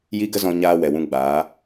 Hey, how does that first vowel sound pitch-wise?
high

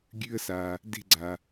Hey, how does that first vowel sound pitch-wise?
high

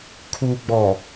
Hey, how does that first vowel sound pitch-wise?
low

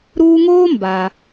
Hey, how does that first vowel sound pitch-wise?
high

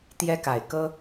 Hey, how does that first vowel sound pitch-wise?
high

